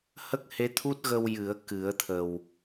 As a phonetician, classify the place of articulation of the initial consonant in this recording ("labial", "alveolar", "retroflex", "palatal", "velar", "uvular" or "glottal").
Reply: glottal